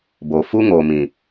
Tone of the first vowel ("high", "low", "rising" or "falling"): low